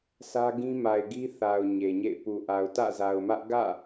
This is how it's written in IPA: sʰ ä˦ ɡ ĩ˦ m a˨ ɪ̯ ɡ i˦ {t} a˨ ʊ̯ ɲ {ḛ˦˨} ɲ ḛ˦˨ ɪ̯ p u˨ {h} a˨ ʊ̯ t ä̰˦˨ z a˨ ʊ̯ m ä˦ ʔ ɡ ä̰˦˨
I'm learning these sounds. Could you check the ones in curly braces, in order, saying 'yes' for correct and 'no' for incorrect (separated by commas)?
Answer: no, no, no